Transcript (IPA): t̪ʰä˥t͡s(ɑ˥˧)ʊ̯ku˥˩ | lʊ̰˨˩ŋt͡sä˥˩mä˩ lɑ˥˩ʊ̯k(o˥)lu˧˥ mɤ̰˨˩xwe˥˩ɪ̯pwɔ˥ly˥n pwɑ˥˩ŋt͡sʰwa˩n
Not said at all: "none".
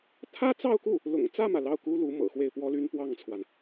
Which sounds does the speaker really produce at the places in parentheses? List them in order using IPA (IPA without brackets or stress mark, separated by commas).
ɑ˥˧, u˥